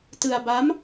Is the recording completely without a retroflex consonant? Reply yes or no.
yes